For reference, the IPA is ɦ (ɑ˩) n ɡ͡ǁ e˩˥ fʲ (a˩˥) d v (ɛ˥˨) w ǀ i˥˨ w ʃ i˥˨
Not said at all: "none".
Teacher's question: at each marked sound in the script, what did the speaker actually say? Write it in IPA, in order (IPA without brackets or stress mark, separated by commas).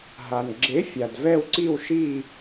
a˩, a˩, ɛ˥˨